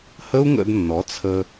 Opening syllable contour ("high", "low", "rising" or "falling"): high